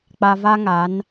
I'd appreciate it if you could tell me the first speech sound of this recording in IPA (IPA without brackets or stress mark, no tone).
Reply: k͡p